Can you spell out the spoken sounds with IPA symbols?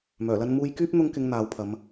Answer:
m œː˨˩ l ɐ˧ n m uː˧ j k yː˥ p̚ n̪ ʊ˧ ŋ k ɪ˨˧ ŋ n̪ aː˨˧ w pʰ ɐ˨˧ m

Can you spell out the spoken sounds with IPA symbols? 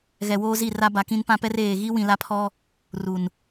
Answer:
ɣ ɛ˨ w oː˦ z i˦˨ r a˦ b a˨ k ĩ˦ n p ã˦ p ɛ˦ r eː˨ ɣ i˦ w ĩ˨ l a˦ pʰ ɔ˦ | r u˨ n

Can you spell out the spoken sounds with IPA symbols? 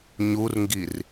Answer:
ɲ u r ŋ ɡ i r

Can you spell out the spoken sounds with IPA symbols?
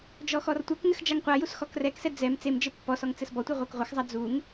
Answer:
d͡ʒ ɔ x ɔ r tʷ ɐ k ŋ ɘ x d͡ʒ a ŋ qʷ a j u s x ɔ k r ɛ k s ɛ d͡z ɛ m t͡s e m d͡ʒ ɘ pː ɔ s ɔ ŋ t͡s ɘ s b ɔ tʷ e ʁʷ ɛ k ʁʷ ɐ x zˤ a d͡z u ŋ

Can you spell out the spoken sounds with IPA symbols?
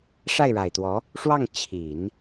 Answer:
ʂ a˥˩ ɪ̯ ɻ a˨˩ ɪ̯ t̪ w ɔ˧˥ | ʂ w ɑ˥˩ ŋ t͡ɕʰ i˨˩˦ n

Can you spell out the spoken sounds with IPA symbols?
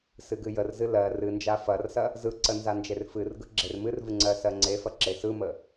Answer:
s ɨ ɡ ɨ j ə r z ɨ l ɜ r ɨ n d͡ʒ a f ɐ r s ɐ | z ɯ ǀ ə n z a n d͡ʒ e r f ɨ r ɡ ɯ ɡ͡ǁ e r m ɨ r v ɨ ŋ͡ǀ ɜ s ɜ ŋ͡ǀ e f ɐ ǁ e s ɯ m ə

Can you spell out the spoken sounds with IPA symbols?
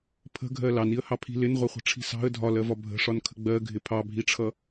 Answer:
pʰ ə̤ ɡʱ ɜ l ɑ n i ə̯ h ɑ pʰ i̤ l ɪ n ʁʷ ʌ χʷ ə̤ ʈ͡ʂʰ i̤ s ɑ̤ ə̯ dʱ ɒ l ɜ v ɒ bʱ ə̤ ʂ ɒ n kʰ ə̤ ɡ͡b ɜ ɡʱ ɪ pʰ ɑ bʱ i ʈ͡ʂʰ ʌ

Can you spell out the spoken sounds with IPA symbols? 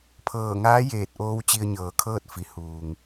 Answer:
pʰ ɤː˧˩ ŋ aː˧˥ j eː˧˩ t̚ ʔ oː˧ w t͡ɕ i˧ ə̯ ɲ ɤː˩˧ kʰ ɤː˥˨ t̚ f i˩ h uː˩ ŋ

